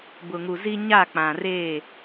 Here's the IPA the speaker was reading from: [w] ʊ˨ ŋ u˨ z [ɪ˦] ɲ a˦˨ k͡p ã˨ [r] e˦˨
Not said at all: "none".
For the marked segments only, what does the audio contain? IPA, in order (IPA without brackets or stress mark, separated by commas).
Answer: b, i˦, r